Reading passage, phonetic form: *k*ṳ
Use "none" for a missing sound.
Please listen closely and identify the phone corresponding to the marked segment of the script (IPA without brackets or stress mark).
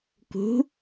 k